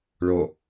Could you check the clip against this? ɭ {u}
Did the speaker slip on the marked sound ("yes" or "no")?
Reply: yes